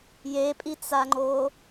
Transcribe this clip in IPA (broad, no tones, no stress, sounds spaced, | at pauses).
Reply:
j e pʼ i t͡s a ŋ͡ǃ o